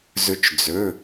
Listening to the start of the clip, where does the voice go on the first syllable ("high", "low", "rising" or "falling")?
rising